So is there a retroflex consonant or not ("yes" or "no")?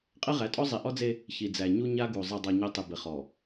no